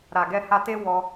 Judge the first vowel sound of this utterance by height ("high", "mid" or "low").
low